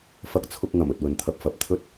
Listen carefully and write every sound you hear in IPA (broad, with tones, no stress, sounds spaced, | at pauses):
f ɐ˥ k̚ t͡sʰ ʊ˥ k̚ ŋ ɐ˨˩ m ɵ˨ t̚ w ɵ˨ n t̪ʰ ɐ˧ p̚ f ɐ˨˥ p̚ t̪ʰ ɵ˥ t̚